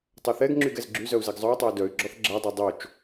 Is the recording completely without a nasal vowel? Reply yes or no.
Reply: yes